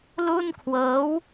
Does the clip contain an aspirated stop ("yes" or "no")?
yes